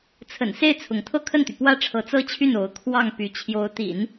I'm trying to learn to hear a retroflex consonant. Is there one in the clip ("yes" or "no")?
yes